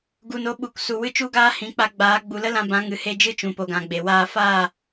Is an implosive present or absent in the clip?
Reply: present